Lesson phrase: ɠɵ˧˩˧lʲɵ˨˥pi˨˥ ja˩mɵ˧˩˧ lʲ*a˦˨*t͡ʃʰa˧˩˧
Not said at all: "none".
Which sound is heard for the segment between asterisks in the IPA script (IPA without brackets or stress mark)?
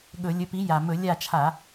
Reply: a˦˨